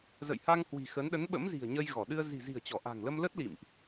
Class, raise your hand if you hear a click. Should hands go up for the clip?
no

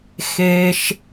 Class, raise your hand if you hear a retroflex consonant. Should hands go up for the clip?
no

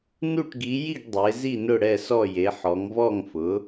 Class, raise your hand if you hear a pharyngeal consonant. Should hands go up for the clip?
yes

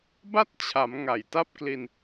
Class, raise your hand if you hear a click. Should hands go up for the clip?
no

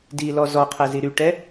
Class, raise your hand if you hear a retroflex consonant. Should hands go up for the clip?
yes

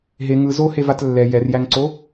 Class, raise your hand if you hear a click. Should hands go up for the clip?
yes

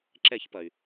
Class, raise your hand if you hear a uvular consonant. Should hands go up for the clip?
no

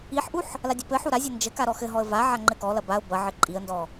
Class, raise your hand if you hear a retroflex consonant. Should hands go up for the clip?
no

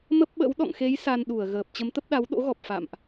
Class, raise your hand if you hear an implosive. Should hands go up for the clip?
yes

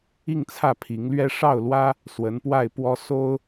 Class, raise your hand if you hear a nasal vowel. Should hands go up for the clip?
no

